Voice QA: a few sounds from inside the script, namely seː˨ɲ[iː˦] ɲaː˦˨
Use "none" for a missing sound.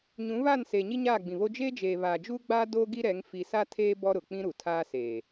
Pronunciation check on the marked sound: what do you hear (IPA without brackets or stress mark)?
i˦